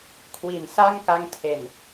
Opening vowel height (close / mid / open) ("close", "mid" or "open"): close